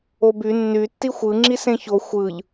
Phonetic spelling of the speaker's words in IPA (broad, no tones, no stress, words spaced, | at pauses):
oby nːy tːixʷɯ ŋ͡ǁisẽço xʷɯʎ